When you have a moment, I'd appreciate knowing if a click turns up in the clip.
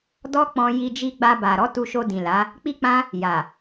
no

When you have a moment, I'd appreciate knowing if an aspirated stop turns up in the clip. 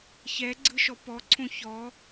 yes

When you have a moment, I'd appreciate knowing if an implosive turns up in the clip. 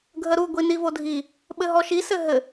yes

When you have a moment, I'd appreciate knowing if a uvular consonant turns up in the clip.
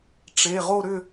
yes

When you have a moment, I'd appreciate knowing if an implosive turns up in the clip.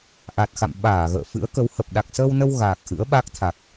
yes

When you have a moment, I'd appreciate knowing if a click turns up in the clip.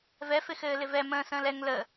no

